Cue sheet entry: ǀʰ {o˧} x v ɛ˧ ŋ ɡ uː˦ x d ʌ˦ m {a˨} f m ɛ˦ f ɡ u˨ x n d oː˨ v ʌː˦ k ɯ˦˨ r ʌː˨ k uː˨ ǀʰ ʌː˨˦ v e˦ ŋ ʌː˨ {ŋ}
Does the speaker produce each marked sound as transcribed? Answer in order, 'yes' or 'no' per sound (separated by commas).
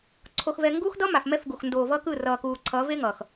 yes, yes, no